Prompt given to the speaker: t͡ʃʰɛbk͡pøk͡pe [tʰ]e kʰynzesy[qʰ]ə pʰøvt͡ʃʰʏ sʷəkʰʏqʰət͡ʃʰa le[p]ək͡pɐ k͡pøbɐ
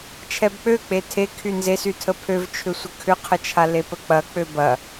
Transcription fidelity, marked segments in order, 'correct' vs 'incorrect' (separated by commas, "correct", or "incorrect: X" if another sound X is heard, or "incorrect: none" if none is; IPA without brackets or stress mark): correct, incorrect: tʰ, correct